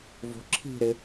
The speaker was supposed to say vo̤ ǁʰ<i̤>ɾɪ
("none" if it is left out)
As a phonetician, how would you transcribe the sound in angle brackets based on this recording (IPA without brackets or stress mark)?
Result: i̤